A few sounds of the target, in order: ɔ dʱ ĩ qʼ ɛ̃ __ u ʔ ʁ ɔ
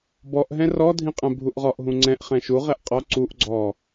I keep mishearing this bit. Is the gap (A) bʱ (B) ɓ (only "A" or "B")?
A